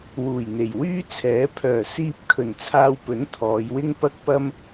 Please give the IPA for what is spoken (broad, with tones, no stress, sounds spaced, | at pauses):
w uː˨˩ j n̪ e˨˩ j w yː˥ t͡sʰ ɛː˨˥ pʰ œː˨˩ s iː˧ p̚ kʰ ɵ˨˩ n t͡sʰ aː˧ w p ɵ˨˥ n t̪ʰ ɔː˨˧ j w ɪ˥ ŋ p ɐ˥ k̚ p ɐ˥ m